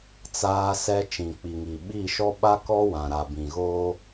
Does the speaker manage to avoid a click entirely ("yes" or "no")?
yes